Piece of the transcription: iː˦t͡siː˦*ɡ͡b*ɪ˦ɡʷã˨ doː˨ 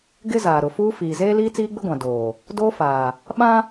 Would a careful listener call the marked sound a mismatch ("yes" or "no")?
no